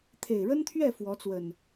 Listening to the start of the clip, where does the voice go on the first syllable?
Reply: low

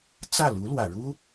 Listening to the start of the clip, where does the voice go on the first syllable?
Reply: falling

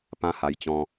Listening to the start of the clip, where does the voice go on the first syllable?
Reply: high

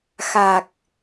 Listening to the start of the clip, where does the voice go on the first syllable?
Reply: low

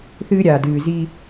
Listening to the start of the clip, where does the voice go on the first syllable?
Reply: high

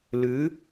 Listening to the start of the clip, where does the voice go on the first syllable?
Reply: rising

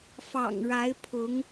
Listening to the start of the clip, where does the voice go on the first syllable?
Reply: low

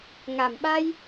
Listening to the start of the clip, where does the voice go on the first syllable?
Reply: low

